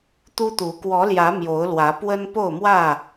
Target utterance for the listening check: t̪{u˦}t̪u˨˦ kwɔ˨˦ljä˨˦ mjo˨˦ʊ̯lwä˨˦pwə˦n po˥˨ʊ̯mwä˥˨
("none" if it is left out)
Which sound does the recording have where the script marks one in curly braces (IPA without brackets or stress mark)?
u˦